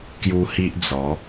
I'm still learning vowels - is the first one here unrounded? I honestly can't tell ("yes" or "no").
no